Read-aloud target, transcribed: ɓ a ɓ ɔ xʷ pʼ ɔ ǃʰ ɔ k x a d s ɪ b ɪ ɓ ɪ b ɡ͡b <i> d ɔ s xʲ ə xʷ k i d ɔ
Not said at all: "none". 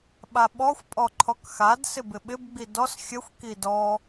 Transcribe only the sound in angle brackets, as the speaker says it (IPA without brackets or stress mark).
i